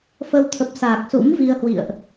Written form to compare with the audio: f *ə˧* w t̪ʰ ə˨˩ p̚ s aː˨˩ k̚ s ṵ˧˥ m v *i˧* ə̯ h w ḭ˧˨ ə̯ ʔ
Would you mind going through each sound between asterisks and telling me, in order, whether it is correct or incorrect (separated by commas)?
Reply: correct, correct